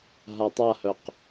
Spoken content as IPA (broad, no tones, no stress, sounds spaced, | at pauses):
ɦ a tˤ a h œ q